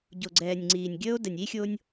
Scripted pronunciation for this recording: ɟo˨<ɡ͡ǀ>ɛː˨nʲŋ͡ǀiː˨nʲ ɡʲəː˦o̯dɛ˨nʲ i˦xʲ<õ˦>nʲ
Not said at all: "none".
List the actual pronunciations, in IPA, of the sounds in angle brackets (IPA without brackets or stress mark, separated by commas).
ɡ͡ǀ, o˦